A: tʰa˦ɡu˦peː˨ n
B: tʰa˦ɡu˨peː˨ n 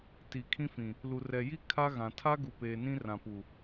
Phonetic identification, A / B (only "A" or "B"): B